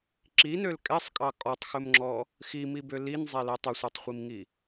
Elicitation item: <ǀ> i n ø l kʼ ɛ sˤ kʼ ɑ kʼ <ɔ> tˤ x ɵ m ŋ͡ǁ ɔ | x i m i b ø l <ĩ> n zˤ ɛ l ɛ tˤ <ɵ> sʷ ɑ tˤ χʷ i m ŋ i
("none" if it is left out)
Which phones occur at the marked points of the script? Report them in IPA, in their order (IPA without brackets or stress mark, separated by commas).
ǁ, ɔ, i, ɵ